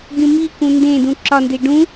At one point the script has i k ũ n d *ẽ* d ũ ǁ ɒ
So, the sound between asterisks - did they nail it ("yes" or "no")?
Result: yes